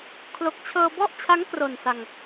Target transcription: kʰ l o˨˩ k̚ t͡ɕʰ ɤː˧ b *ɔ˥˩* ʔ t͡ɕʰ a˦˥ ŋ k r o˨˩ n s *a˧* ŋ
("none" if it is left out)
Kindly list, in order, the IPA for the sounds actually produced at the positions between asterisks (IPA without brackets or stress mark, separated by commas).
ɔ˥˩, a˧